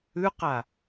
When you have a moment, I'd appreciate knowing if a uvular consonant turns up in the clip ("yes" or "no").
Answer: yes